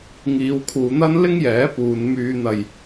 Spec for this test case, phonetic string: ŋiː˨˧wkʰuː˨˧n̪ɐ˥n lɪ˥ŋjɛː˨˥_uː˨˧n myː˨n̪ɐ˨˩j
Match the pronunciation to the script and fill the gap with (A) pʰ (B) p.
B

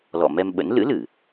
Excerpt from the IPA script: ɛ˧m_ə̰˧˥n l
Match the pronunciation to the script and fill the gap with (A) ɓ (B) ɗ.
A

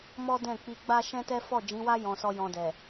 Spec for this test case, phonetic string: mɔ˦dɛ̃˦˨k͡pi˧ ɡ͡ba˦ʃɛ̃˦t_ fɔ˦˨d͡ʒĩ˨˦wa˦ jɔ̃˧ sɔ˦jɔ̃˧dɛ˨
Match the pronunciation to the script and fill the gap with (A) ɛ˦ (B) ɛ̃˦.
A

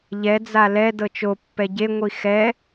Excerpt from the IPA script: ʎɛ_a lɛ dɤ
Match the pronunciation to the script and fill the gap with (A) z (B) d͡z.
B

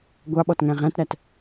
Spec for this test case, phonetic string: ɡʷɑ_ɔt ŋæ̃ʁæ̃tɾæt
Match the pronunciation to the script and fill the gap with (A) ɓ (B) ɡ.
A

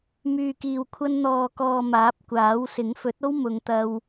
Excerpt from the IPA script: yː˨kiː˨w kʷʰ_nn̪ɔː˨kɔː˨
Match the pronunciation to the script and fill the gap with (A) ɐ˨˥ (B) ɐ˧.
B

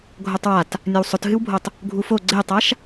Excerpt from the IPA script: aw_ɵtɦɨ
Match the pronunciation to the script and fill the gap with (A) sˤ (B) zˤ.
A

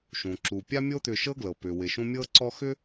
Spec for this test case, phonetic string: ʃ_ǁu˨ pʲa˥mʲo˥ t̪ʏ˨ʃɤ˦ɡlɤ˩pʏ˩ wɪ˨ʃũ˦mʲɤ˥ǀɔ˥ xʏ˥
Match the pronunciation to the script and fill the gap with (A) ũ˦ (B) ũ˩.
B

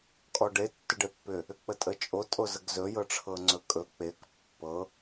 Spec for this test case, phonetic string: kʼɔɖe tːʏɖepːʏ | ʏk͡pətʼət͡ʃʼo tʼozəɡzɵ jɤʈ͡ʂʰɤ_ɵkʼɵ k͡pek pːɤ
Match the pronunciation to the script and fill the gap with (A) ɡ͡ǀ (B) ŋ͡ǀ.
B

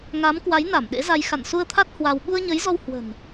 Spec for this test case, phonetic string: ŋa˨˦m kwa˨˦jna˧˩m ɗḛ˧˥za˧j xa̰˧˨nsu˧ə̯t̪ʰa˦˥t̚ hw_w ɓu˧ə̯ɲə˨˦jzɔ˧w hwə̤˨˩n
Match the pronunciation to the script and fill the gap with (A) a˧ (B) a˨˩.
A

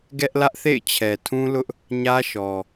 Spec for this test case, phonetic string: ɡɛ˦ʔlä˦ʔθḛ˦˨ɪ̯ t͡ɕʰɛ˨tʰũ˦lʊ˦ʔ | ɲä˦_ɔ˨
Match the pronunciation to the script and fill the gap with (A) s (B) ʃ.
B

